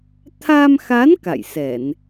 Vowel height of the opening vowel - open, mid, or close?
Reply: open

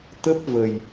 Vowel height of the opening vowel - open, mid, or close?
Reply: mid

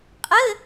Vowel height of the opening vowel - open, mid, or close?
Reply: mid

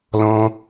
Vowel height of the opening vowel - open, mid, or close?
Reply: mid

